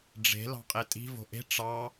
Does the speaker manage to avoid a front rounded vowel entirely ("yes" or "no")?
yes